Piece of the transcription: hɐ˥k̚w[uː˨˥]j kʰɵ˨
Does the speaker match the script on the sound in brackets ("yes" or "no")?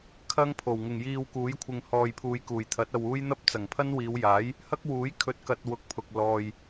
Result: yes